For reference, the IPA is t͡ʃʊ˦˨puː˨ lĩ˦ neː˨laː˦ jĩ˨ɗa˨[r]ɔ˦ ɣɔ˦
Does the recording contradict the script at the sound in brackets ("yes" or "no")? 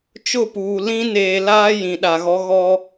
yes